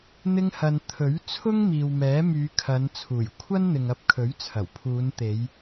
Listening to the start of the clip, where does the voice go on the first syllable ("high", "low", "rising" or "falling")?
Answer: high